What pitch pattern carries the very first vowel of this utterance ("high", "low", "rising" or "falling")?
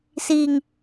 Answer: high